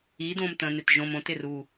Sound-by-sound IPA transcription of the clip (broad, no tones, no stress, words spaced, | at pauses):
i d̪õmt̪ə̃n̪ɪt ʒõm õt ɪru